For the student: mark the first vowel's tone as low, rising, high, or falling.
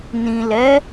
low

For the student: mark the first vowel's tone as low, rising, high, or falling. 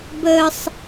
high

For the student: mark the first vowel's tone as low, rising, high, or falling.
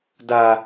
low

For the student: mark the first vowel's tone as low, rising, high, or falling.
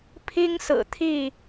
high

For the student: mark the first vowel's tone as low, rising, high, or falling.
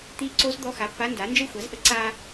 rising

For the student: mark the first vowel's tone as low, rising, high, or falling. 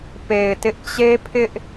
low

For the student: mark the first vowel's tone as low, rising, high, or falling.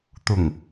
low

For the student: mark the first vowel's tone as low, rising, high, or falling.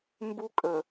high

